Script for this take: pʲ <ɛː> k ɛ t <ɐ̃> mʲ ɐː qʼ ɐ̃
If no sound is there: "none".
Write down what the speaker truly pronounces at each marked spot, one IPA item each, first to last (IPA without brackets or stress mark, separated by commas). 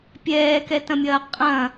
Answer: ɛː, ɐ̃